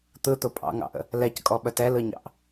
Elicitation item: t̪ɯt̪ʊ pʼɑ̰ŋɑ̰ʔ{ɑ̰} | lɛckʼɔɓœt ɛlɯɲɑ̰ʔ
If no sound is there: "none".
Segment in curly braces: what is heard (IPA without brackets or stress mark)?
ə̰